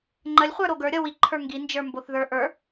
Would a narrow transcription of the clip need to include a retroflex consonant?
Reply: no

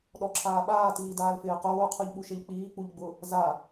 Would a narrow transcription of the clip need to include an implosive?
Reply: yes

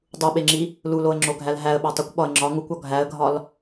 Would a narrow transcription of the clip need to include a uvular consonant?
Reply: no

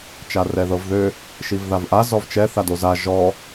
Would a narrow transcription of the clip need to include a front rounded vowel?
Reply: yes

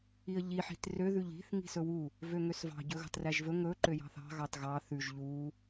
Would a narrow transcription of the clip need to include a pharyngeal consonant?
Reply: yes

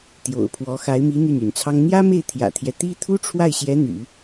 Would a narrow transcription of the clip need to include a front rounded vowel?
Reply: yes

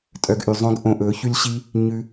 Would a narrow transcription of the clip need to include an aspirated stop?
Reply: no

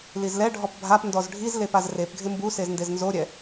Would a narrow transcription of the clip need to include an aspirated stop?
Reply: no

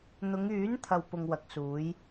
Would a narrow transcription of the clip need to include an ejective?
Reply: no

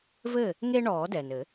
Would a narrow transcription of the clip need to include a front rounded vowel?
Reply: no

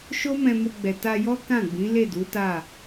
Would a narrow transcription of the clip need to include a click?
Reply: no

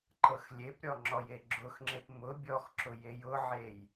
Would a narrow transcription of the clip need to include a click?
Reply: yes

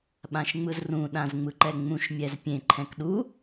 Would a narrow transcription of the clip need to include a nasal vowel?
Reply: yes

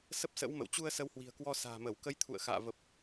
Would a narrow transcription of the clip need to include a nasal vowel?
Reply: no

